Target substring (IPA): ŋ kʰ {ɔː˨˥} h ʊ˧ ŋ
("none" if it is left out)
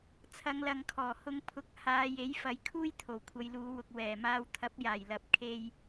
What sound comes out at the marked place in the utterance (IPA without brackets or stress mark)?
ɔː˨˩